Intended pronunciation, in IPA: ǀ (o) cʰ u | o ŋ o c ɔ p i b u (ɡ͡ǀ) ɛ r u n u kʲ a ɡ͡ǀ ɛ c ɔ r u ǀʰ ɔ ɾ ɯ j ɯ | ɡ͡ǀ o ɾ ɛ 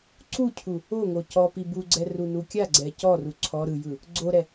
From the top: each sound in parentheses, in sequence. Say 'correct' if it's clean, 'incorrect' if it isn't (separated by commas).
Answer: incorrect, correct